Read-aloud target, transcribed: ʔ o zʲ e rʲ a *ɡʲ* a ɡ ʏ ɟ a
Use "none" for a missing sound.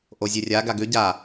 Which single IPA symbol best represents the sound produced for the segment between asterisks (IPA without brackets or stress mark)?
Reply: ɡ